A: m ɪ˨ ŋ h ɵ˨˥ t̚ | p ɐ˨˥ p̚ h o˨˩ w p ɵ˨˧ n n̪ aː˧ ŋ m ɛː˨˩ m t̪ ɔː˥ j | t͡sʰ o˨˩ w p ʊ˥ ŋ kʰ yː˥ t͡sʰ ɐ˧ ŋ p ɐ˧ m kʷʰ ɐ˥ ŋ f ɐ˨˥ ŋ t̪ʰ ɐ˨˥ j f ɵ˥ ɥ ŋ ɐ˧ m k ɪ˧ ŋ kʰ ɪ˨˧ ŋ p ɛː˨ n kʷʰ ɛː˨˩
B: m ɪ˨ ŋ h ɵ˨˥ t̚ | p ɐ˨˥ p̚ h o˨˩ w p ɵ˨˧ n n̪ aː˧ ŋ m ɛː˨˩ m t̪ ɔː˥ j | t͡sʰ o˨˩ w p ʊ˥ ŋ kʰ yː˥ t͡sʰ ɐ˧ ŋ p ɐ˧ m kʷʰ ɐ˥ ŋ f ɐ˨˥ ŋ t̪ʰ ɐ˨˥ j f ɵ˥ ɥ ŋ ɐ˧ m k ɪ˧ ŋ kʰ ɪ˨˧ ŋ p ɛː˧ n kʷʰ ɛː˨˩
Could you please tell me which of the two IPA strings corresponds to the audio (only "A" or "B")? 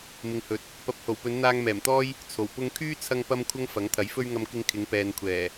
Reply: A